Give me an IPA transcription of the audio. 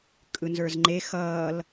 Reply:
kʼ ɯ n z ə˞ z ŋ͡ǃ e x ʌː l

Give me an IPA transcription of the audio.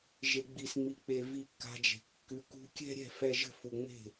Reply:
ʒ e˨ ɡ͡b i˨ s ŋ͡m i˨ k͡p e˨ v i˧ kː a̤˧ d͡ʒ e̤˨ kː ʉ˨ k ṳ˧ kʲ ɛ̤˦ ɾʲ ɛ̤˦˨ f ɛ˧ ʒ ə̤˦˨ f u˨ ŋ͡m e̤˦˨

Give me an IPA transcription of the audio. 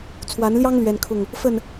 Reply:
t͡sʰ w a˨˦ n l j ɑ˦ ŋ l ɥ ɛ˦ n kʰ ʊ˥˨ ŋ | f ə˥˨ n

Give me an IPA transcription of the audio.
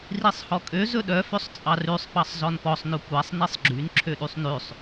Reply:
r i sˤ h ɔ kʼ ø z ɵ ɗ œ f ø sˤ t͡sʼ ɑ r ʉ sˤ p ɑ sˤ z ɔ n p ɔ sˤ n ɵ kʷ æ sˤ n i sˤ ɡ͡ǁ y n ǁʰ ø ɗ y sˤ n ʉ sˤ

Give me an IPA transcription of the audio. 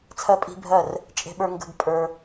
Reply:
t͡sʰ ɜ˦ pʼ i̤˦ bʱ ɜ˦˨ r | t͡ʃʼ e̤˧ ɓ ə˞˧ ŋ ɡ ə̤˦ ɡ pʼ ə˞˧

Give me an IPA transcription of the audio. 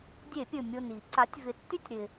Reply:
dʲ e˧˩˧ pʲ ɵ˨˩ mʲ o˨˩ n i˧˩˧ ǀ a˩˥ tʲ v ɪ˩˥ tː y˥˧ tʲ ɾ ɪ˨˩

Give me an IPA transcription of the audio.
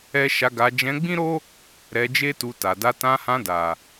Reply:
ɛ˦ ʃ a˧ ɡ a˧ d͡ʒ ɛ̃˧ ɡ͡b ĩ˦ ɾ o˦ | ɾ ɛ˧ d͡ʒ e˦ t u˧ t a˨ d a˧ t ã˧ h ã˧ d a˨

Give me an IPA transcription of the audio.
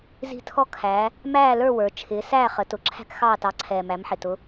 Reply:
z i̤˥˧ tʰ ɔ˥ kʰ æː˨˦ | m æː˥˧ l ə˞˥˧ w ə˞˨˦ t͡ʃʰ ɪː˨˦ s æː˥˧ χ ə˨˦ t ʊ˨˦ ǁʰ æ̤˥ k x ɑː˥˧ t ɑ˨˦ ǀʰ ɛː˨ m æ˨˦ m ħ ɪ˨ t ʊ˨˦

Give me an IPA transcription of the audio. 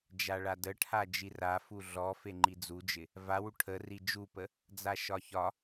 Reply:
d͡ʒ a ɭ a d ə ʈʰ a d͡ʒ i r a f u ɮ ɔ f e ŋ͡ǃ i d͡z u d͡ʒ ɪ | v a w u ʈʰ ə r i d͡ʒ u p ə | d͡z a ʃ ɒ ç ɒ

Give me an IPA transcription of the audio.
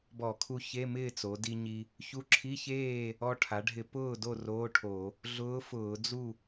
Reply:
b ɔ˧˩˧ kʰ u˧ ç e˧˥˧ m ɪː˥˨ t͡s o˩˧ d i˧ ɲ i˧ | ç u˧˥ ǁʰ i˧˥˧ ç eː˥˨ | ɔ˧ ʈʰ a˩˧ ɖʱ ɪ˧˩˧ p ʊː˥˨ d o˥˨ r oː˧˥˧ ʈʰ o˧˩˧ | ɮ ʊː˧˥ f ʊː˧˩˧ d͡z u˥˨

